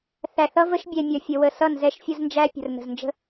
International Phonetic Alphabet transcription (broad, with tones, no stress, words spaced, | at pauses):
θæ˨θʌ˦ və˦ʃbʲɛ˨ mʲʌ˨fʲə˨wə˨ sʌ˦˨nzɛ˦ʃfʲə˦znd͡ʒæ˦ pʲə̤˨rnə̤˨znd͡ʒə̤˦